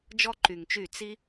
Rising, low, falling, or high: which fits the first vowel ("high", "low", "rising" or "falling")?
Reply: high